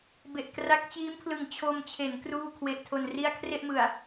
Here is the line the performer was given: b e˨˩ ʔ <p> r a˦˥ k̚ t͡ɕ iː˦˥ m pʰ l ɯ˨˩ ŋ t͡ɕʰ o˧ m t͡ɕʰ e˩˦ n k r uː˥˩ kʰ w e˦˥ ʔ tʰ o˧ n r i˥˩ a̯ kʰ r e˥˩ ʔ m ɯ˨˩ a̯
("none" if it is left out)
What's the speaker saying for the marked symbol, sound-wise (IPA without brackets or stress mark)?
k